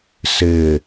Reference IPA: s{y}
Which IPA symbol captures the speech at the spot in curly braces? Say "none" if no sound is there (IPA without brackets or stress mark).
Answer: ɪ